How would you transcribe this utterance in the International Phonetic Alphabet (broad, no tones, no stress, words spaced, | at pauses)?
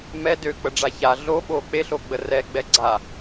mɛ døk͡pəɖ͡ʐa ça ɮoɓo k͡peɬoɡ͡bə rɛɡ͡bɛ ɡ͡ǀa